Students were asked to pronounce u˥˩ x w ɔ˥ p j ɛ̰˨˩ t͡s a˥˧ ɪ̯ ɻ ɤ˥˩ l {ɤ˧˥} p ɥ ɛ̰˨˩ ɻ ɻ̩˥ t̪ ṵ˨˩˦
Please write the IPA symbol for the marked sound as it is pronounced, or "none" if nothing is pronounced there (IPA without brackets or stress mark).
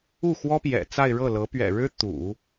ɤ˧˥